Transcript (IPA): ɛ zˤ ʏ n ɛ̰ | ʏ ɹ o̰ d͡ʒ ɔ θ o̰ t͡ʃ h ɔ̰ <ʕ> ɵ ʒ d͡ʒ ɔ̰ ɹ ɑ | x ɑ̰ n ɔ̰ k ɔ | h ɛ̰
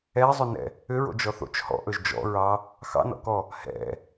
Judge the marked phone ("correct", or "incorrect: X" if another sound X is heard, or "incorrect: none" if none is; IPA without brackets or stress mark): incorrect: ʔ